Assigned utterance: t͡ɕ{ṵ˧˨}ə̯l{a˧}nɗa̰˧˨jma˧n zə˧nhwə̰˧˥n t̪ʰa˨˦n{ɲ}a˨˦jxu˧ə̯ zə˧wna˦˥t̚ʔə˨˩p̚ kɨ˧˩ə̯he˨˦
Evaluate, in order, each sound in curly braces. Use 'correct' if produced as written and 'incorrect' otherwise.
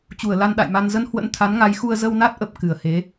incorrect: u˧˩, correct, incorrect: ŋ

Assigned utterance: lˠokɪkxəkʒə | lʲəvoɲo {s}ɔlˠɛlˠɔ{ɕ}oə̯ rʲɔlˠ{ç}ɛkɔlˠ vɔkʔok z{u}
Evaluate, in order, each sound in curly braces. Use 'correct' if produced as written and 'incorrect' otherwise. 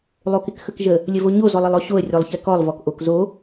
incorrect: z, correct, correct, incorrect: o

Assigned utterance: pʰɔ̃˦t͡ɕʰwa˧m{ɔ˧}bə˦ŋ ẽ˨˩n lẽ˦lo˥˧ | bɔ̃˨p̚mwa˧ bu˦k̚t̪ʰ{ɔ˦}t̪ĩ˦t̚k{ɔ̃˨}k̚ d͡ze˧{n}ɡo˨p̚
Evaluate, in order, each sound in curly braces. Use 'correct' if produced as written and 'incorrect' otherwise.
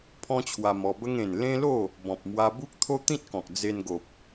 correct, incorrect: o˦, correct, correct

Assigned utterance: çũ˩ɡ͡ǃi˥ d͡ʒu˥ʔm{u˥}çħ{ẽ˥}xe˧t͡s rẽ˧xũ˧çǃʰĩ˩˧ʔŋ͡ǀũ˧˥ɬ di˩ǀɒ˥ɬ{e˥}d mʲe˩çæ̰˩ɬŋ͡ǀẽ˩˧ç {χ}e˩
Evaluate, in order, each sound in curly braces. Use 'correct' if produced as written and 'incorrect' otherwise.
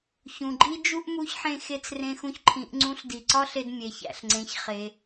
incorrect: u˧˥, incorrect: ẽ˧, incorrect: e˧, correct

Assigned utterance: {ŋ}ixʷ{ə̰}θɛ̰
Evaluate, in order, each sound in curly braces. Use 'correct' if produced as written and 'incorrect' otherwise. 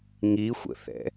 correct, correct

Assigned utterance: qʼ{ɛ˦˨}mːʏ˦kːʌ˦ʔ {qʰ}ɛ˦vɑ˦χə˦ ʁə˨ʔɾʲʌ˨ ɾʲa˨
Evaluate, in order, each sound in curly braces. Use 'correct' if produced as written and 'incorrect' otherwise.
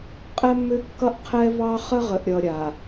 incorrect: ɛ˦, correct

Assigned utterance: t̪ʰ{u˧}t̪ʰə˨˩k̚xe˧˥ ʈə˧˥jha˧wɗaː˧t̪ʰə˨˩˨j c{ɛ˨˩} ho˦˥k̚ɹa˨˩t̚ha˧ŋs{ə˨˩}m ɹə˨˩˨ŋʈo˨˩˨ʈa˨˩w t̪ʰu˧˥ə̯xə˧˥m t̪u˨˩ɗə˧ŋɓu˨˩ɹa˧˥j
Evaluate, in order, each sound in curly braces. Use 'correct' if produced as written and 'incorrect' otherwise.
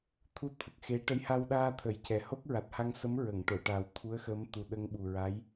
correct, correct, incorrect: ə˧˥

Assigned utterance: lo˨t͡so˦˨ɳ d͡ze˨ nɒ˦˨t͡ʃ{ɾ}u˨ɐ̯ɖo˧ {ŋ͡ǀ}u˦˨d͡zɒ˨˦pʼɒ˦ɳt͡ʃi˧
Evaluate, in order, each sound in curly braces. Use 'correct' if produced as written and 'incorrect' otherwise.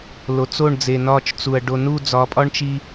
incorrect: t͡s, incorrect: n

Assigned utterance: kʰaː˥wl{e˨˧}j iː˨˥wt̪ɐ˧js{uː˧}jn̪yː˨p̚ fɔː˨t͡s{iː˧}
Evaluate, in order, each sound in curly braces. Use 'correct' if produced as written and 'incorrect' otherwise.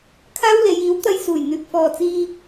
correct, incorrect: uː˨˩, correct

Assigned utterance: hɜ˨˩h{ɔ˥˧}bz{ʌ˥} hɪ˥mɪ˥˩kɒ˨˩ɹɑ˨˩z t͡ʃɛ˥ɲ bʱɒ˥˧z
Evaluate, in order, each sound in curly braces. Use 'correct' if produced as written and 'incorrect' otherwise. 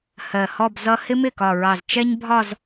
correct, correct

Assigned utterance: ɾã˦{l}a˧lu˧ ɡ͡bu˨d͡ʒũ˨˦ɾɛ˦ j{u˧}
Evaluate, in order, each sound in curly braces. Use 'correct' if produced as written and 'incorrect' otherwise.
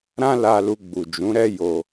correct, incorrect: o˧

